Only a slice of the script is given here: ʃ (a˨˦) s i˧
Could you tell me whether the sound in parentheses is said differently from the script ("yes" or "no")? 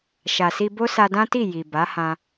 yes